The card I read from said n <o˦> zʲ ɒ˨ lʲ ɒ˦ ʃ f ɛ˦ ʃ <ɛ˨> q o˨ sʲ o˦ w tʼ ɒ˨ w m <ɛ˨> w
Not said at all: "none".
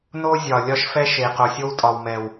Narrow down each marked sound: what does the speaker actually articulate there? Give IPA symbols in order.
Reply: o˦, e˨, ɛ˨

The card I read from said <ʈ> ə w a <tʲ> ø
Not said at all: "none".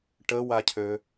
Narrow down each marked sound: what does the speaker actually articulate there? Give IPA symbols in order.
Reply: ʈ, cʰ

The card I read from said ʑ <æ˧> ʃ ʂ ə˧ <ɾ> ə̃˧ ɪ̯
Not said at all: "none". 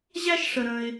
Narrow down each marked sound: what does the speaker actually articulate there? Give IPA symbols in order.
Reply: æ˥, ɾ

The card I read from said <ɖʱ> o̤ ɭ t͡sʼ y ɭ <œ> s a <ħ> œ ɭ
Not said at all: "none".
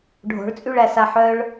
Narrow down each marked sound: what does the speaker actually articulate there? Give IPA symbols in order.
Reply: ɖʱ, æ, ħ

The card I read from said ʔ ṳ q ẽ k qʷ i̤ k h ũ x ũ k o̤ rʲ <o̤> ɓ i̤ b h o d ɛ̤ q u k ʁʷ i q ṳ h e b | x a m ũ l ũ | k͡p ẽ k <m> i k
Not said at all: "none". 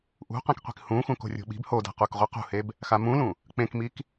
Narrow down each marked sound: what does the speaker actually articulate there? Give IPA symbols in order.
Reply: o̤, m

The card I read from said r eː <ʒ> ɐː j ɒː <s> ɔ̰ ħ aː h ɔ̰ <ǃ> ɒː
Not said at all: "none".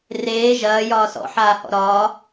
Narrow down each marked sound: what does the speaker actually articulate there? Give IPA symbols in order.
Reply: ʒ, s, ɾ

